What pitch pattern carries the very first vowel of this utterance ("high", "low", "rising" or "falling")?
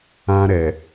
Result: high